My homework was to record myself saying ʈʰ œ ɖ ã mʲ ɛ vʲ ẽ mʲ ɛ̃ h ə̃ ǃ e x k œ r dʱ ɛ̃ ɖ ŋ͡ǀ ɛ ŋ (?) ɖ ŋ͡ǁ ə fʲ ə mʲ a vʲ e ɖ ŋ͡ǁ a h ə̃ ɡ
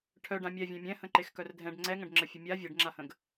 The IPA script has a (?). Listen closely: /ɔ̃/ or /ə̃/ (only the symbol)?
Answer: ə̃